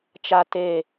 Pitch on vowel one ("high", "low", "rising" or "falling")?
low